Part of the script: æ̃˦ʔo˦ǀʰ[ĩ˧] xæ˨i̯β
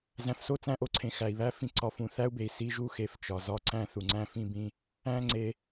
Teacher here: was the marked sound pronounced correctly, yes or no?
no